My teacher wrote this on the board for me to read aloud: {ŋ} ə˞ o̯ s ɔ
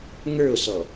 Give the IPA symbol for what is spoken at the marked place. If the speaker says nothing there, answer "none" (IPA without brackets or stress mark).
ŋ